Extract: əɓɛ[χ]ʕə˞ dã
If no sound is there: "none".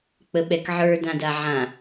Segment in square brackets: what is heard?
k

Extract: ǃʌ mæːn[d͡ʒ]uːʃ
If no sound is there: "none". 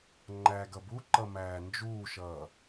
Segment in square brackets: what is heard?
d͡ʒ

